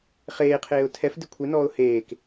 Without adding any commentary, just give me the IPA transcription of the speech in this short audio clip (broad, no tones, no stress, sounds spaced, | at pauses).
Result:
χ eː qʰ eː ʊ̯ tʰ ɛ f d ɪ kʷʰ e n ɔː ʊ̯ h eː k